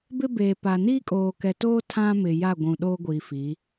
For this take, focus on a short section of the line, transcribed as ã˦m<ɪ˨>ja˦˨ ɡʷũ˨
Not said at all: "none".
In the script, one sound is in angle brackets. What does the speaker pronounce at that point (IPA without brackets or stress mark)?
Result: ɪ˨